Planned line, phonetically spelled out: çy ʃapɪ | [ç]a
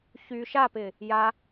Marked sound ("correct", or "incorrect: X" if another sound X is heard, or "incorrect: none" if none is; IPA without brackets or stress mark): incorrect: j